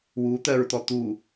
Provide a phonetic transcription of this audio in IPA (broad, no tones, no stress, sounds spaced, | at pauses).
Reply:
w u t̪ ɜ ɹ t̪ ɔ t̪ u